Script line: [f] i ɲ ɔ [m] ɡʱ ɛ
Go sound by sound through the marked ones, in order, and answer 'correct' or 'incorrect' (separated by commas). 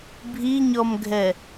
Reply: incorrect, correct